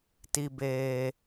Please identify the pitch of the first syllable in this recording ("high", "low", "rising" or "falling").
low